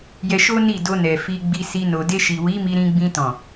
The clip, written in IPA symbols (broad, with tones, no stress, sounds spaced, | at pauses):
j ɛ˧ ʃ o˦ n i˦˨ d o˧ n ɛ˨ f i˧ ɡ͡b i˧ s i˧ n o˨ d e˧ ʃ i˨ w i˨˦ m i˧ ɾ ĩ˧ ɡ͡b ĩ˧ t ɔ̃˨